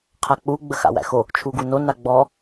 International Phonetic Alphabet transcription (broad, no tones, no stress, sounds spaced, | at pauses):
qʰ a k͡p u ɡ͡b ə x a̰ w æ̰ x o | t͡ʃʰ u ɡ u n o n a ɡ͡b ɔ